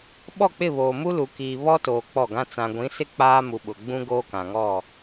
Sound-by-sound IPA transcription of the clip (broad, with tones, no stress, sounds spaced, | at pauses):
ɓ ɔ˦˨ k͡p ɪ˦˨ β oː˨ m u˦ l u˨ k iː˨ β ɔ˦ t oː˨ k͡p ɔ˦˨ ɡ ã˦ t͡s ã˨ ɡʷ ĩ˨˦ s ɪ˦ k͡p aː˦ m u˨ ɓ ʊ˨ ɡ͡b ũ˦ ɡ oː˦ k ã˨ ŋ ɔ˦˨